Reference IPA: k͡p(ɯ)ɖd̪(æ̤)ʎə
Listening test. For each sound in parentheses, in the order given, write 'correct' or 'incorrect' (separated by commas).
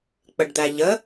incorrect, incorrect